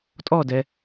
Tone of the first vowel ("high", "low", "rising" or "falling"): falling